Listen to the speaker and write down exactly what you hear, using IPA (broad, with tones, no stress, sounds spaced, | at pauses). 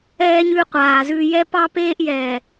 ɛː˦ ɲ ʉ˦ qʷ aː˨ z ʉ˦ j ɛ˦ p ɑ˦ p eː˦ ʔ j ɛː˨